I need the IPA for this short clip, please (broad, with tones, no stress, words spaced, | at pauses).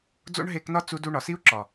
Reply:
d͡zo̰˦ɳ ɦe˧knɒ˦ t͡su˧du˧ ɳɒ˨si˦u̯ǁɒ˨